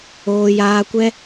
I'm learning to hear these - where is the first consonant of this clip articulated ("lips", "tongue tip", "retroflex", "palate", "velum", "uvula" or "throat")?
palate